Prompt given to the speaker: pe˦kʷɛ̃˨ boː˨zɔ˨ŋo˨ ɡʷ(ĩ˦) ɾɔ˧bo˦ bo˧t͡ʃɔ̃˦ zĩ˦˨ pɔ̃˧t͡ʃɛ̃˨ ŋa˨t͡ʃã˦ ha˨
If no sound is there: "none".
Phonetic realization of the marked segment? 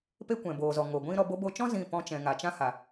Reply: ĩ˦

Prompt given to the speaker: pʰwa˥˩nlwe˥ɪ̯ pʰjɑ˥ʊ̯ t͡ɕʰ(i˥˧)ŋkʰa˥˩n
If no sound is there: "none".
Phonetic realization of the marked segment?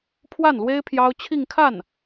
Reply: i˥˧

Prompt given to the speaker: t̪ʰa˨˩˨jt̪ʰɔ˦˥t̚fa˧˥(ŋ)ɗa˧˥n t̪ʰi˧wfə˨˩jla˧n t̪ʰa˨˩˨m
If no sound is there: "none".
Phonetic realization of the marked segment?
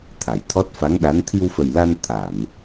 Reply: ŋ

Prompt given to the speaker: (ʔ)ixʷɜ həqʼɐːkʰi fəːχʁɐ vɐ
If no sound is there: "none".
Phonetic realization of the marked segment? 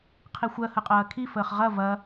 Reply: qʰ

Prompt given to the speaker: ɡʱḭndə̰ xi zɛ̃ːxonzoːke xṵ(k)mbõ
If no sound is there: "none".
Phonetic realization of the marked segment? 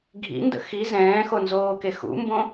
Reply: none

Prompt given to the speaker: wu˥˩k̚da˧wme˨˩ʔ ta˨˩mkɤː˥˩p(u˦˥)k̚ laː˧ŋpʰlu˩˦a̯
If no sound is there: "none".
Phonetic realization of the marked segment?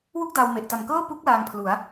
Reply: u˦˥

